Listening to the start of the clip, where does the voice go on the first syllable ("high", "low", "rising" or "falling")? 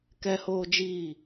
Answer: high